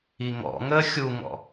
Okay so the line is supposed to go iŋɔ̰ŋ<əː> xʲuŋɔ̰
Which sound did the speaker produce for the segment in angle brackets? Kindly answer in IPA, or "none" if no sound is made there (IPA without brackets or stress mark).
əː